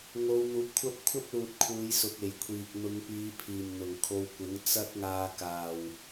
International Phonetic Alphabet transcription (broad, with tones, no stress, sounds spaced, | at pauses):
ŋ o˨˧ w n̪ uː˨˥ p̚ kʷʰ ɐ˥ p̚ kʷʰ ɐ˥ p̚ l uː˨ t̚ kʰ uː˨˧ j s ʊ˨ k̚ e˨˩ j kʷʰ iː˨ k̚ n̪ ʊ˨˧ ŋ p iː˨˧ pʰ iː˨˩ m n̪ ʊ˨˩ ŋ kʰ o˧ w kʷ ɪ˨˥ ŋ t͡s ɐ˥ t̚ ŋ aː˧ k aː˨ w